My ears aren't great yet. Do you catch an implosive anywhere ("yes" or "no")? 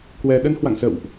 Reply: yes